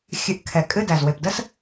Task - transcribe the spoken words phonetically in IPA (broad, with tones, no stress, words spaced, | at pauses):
xʲɨ˨˥ʔkʰɛ˨˩ kʼɨ˦˨dæ˨˩z we˨˩pdə˥s